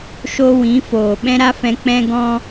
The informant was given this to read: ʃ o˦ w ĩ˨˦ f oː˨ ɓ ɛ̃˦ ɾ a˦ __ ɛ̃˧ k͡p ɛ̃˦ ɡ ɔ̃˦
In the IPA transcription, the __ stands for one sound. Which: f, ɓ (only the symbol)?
f